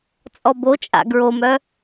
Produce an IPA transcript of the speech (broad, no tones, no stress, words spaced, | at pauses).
t͡sʼɔbot͡ʃʼa̰ ɡɹomœ